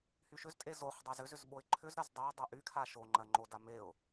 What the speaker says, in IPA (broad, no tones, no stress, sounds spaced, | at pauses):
h y ʃ ʏ z tʼ e z o χ dˤ e z ʏ z ʏ z ɓ o ɪ̯ ǃʰ ʏ z ɾ ɜ z dˤ e ə̯ dˤ e ʔ y kʰ a ʃ o ŋ͡ǃ ɜ ŋ͡ǃ o d a m e ʊ̯